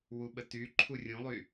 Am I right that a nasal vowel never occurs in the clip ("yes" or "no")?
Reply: no